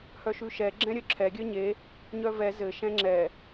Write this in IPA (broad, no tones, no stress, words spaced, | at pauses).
hœʃʉʃɛ ɡ͡ǁɛ̃ɾʲœǁʰɛ ɡʲœɲe | ɲœvɛ zɘ ʃɛ̃ŋ͡ǁɛ